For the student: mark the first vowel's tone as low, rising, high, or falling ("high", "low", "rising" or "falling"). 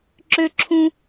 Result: high